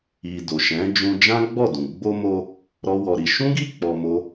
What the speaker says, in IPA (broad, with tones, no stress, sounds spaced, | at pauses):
i˧ d o˨ ʃ ɛ̃˨˦ d͡ʒ ũ˧ d͡ʒ ã˦ ɡ͡b ɔ˦˨ d ũ˨ ɡ͡b o˧ m o˧ | ɾ ɔ˦ w ɔ˧ ɾ i˧ ʃ ũ˦ ɡ i˦˨ k͡p ɔ˧ m o˦